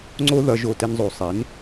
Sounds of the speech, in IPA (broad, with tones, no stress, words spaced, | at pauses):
ŋ͡ǀo˥ðʌ˧ ʒo˥˩tɛ˥nzˤo˩˥ sˤe˩˥n